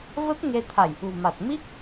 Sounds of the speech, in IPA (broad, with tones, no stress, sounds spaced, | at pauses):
v ə˦˥ t̚ ŋ e˧ t̪ʰ a˧˩ j ʔ ṳ˨˩ m a˨˩ t̚ m i˦˥ k̚